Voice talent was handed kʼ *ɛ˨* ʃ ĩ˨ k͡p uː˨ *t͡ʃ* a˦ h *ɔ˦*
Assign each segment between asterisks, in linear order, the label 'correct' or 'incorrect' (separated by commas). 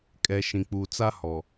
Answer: correct, incorrect, incorrect